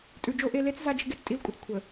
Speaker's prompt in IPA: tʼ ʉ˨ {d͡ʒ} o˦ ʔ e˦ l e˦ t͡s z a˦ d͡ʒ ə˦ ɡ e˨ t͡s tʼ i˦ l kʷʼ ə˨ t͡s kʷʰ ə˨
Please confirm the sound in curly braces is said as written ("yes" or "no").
yes